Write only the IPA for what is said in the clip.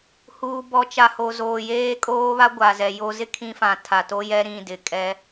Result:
huː˨bɔ˨t͡ʃa˨ ho˨zoː˨jeː˦kʼoː˦ βa˦ɡʷa˨zɛ˨ jo˦ zɪ˦ kʰĩ˦fã˨ tʰa˨to˦jɛ˦ ɾĩ˦˨dɪ˨ kʼɛ˦

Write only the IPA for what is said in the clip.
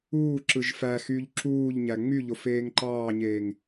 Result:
uːǁɯʒ fæxyːʎ ǁuːʎɲæ ŋ͡myʎo feːŋǃɑːɲeːŋ

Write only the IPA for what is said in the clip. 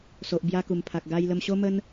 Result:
so˨ʔbja˧ku˨˩mpʰa˨k̚ ɡa˧jlə˧mɕo˦mə˦n

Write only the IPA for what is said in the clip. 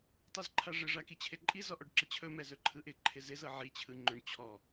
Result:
tˤɯzǃʰaʐɪ ʐakit͡ɕʰɪǃʼi zɔʔɔɖǁɪt͡ɕʰɵ mɛzɵǃʰɯʔɪ ǃʰɪzɪz ɤʕi t͡ɕʰɯŋ͡ǃɵɳ t͡ɕʰɔ

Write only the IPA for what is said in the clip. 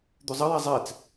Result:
d̪ʉzˤɐ jazˤɛt͡s

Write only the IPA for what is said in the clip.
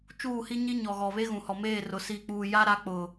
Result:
t͡ʃuː˦˨hi˦ɲi˦ ɲɔ˨ɣɔ˨βe˦ ɣũ˨hɔ˨meː˦˨rʊ˨ si˨k͡puː˨ja˦ ɾa˦ k͡pʊ˨

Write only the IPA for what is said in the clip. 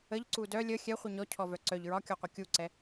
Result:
əʎǀu dœ lʲə xʲɛχʷi ɲɔcʰɔvœ ǀœʎ ɹɒkʲɔqʷə kʲuǀɛ

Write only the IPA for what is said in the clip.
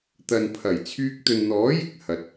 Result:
t̪ɐ˨npʰɐ˨˩j t͡sʰyː˧k̚t̪ɵ˨nn̪ɔː˨˥jɪ˨k̚ hɐ˨t̚

